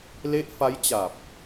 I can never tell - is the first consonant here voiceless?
no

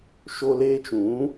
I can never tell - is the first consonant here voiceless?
yes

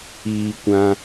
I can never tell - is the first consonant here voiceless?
yes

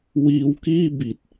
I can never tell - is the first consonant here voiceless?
no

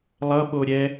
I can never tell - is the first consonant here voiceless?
no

